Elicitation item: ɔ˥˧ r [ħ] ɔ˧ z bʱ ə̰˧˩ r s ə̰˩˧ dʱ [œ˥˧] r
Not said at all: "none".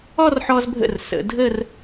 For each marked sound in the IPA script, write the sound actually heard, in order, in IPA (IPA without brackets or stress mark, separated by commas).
ħ, ə˥˧